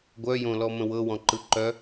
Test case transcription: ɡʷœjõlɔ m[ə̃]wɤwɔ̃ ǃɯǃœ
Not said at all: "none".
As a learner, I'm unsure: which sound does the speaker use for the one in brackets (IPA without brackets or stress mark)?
ə̃